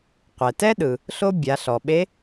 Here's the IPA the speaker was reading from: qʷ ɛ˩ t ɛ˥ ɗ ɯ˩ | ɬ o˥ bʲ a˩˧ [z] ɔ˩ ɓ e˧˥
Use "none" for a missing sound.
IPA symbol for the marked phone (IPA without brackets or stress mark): ɬ